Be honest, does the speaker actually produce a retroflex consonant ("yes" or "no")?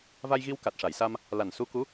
yes